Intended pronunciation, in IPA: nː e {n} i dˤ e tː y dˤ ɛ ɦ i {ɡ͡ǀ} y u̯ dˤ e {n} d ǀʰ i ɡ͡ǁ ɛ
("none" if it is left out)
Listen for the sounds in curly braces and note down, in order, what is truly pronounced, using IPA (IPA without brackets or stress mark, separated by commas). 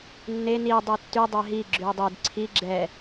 n, ɡ͡ǁ, none